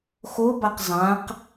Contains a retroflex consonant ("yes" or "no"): no